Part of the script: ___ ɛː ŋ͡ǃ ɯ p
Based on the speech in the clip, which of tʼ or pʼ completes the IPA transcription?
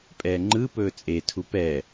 pʼ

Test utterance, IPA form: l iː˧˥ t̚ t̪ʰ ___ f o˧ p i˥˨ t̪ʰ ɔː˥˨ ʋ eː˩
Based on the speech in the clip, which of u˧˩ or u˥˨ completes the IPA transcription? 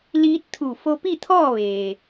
u˧˩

